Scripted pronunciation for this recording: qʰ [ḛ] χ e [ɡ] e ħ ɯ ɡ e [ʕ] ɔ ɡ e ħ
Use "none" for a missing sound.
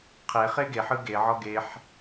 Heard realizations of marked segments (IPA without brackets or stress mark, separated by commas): e, ɡ, ʕ